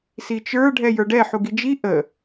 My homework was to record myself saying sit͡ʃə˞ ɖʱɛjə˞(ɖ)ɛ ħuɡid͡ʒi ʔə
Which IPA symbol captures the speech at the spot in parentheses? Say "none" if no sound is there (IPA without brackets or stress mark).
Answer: ɖ